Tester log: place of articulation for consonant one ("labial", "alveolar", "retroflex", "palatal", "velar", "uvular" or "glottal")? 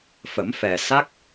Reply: labial